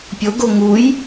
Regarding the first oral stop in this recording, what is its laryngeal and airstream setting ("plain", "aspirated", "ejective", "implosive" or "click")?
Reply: plain